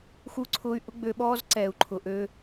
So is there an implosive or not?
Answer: yes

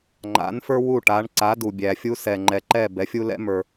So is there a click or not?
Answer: yes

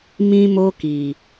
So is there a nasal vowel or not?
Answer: yes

